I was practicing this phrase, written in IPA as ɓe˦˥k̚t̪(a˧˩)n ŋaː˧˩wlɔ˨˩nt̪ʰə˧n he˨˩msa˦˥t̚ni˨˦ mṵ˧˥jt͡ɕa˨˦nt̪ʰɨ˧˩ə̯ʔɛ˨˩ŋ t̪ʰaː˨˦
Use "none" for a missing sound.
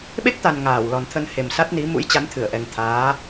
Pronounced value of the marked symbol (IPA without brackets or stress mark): a˨˩